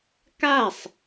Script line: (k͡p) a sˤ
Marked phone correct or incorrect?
incorrect